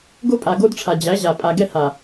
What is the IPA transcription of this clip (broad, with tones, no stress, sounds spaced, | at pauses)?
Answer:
ɡ o˦ pʼ a˨ ɡ o˦ d ʈ͡ʂʰ a˨ d͡ʑ æ˨˦ ʑ a˨ pʼ a˨ ɡ ɛ˦ h a˨